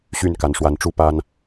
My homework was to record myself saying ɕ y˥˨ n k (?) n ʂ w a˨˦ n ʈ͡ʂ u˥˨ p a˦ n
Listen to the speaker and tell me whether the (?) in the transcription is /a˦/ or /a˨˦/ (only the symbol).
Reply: a˨˦